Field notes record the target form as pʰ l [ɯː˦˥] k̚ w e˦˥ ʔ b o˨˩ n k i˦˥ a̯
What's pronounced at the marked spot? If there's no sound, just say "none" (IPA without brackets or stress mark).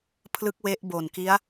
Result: ɯ˦˥